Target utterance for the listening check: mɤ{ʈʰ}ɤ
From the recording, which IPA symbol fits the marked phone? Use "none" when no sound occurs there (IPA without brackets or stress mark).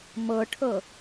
ʈʰ